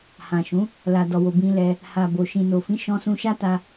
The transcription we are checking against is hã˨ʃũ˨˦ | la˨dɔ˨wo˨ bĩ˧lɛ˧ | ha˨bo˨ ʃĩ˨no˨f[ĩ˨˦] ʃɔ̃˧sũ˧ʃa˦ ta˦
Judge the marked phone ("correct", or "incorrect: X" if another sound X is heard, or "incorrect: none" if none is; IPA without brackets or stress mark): correct